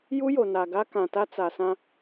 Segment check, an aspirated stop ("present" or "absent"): absent